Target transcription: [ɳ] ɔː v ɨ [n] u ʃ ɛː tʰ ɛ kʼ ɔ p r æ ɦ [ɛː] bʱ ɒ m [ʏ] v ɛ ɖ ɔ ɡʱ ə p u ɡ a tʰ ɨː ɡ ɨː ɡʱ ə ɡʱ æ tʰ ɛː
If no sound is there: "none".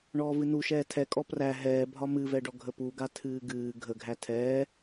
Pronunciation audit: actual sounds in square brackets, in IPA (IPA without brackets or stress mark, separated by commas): ɳ, n, ɛː, ɨ